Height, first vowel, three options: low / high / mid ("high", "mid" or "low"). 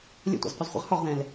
mid